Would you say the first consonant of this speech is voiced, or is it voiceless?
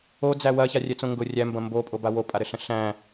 voiced